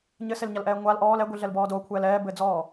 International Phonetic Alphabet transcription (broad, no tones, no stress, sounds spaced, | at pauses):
ɲ ɘ s e l ɲ a l ʔ ɛː ŋʷ a l ʔ ɔː l ɛ ɡʷ i ɮ ɛ l b ɔː d o kʷʰ ɛː l ɛː b ɘː d͡z ɔː